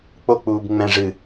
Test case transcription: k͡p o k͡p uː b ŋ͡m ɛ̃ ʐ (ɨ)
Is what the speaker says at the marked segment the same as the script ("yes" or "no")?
yes